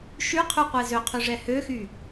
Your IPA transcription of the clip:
ʃ y qʰ y qʷ ɛ z ø qʰ y ʐ ɛ h ø x y

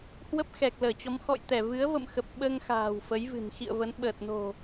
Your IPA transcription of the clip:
h w ə˦˥ p̚ x ɛ˨˩ k̚ l əː˧˩ t͡ɕ ɔ˨˦ m x ɔ̰˧˨ j t̪ ɛ˧˩ v ɨ˨˦ ə̯ v ə̰˧˨ m x ə˨˩ p̚ ɓ əː˧ ŋ x a̤ː˨˩ w f ə˨˦ j v ɨ̤˨˩ n x ḭ˧˨ ə̯ v ə˨˦ n ɓ əː˨˩ t̚ n o̤˨˩

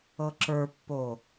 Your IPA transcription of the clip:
ɤ ǁ ə˞ pː o

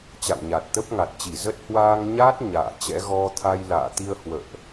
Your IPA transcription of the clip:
t͡ɕ a̰˧˨ w ɲ a˨˩ t̚ t̪ ə˦˥ p̚ ŋ a˨˩ t̚ t͡ɕ i˧˩ z ə˦˥ t̚ h w aː˧ ŋ ɲ aː˦˥ t̚ ɲ a̰ː˧˨ t͡ɕ ɛ̰˧˥ ɣ ɔ˧ t̪ʰ a˧ j l a̰ː˧˨ t̪ i˧ ə̯ h w ə̰ː˧˨ ʔ

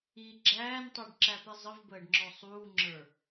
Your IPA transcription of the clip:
i ɡ͡ǁ æː n tˤ u ɖ ǁ æ p ɛ zˤ ə v b əː ɖ ŋ͡ǁ ɔ sˤ uː ŋ͡ǁ ə˞

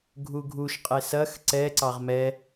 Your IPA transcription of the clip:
ɡʱ u ɡʱ u ʃ qʼ e s ɐ x ǀ ɛ ǀ ɑ ʁ m ɛ

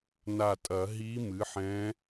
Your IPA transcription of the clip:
n a˧˩ tʼ ɐ˨˩˦ ɦ i˧˥ m ɨ˩˥ ħ ɛ̃˧˥

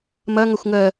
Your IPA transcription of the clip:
m ɐ ŋ ɐ xʷ ŋ ɜ

